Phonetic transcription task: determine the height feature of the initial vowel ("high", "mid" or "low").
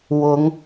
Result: high